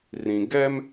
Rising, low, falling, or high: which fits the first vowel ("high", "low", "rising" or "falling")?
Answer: low